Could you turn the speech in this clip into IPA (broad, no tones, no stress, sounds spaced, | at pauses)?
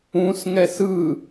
ũ s ŋ ɛ s ɯ